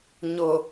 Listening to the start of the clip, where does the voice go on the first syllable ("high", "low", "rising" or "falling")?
low